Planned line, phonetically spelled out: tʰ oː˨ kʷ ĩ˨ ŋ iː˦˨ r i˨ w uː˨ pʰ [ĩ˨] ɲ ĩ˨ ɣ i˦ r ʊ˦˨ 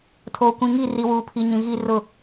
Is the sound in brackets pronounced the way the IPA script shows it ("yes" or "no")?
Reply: no